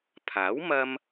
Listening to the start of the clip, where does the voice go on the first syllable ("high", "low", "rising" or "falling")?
rising